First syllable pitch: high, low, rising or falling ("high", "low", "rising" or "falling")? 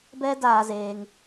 high